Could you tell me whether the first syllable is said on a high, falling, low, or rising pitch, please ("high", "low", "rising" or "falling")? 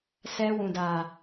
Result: high